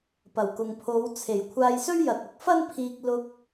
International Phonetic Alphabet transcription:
p ɐ˨˩ w k ʊ˨ ŋ pʰ o˨˧ w t͡sʰ e˨˩ j kʷʰ aː˧ j s ɵ˥ ɥ j ɐ˨ t̚ ʊ˨˥ k̚ f ɐ˥ n pʰ iː˧ k̚ l ʊ˧ k̚

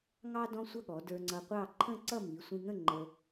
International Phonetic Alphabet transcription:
ŋ ɑ˥ d ɔ̃˥ sʷ ʌ˥˧ ɠ ɔ˩˧ d ə˞˧ ŋ͡ǀ ʌ˧ qʷ ɑ˥˧ ǃʰ ə̃˥˧ ǀ ʌ˥˧ m i˩˧ sʷ ĩ˧ ŋ ə̃˥˧ ŋ͡ǃ ə˧

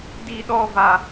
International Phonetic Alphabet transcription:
d i˦ ɗ ɔ˦ v a˧

